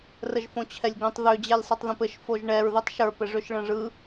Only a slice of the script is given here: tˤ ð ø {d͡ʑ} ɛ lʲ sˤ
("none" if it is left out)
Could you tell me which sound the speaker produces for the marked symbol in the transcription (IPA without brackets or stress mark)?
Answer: d͡ʑ